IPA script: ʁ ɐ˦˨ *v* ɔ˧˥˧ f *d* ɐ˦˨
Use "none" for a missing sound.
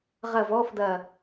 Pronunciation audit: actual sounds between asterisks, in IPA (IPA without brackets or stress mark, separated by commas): v, d